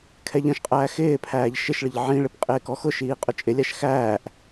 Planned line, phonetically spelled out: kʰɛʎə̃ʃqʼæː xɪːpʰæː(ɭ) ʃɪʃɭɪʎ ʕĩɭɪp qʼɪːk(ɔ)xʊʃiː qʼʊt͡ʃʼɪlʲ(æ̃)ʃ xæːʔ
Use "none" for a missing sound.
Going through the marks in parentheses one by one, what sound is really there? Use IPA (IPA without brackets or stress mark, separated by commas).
ʎ, ɔ, æ